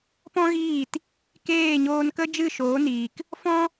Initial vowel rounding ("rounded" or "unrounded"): rounded